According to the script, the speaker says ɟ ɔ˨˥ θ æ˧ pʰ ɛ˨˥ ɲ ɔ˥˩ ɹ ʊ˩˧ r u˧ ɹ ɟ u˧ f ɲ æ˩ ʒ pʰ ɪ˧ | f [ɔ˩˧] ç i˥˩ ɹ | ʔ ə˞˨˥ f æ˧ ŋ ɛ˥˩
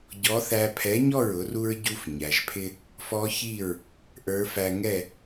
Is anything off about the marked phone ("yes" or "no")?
yes